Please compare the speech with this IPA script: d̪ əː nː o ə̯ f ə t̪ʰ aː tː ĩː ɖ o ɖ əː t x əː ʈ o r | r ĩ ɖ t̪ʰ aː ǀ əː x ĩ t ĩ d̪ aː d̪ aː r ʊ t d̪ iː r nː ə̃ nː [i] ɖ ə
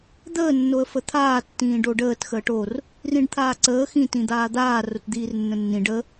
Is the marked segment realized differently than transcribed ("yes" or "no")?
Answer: yes